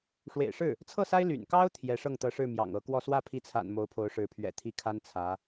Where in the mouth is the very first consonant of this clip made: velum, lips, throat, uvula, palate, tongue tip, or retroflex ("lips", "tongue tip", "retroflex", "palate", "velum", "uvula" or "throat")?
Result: retroflex